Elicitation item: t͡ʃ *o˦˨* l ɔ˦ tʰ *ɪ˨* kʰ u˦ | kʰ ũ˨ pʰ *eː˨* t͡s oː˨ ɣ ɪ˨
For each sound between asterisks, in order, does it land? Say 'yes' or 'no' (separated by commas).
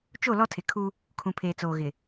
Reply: yes, yes, yes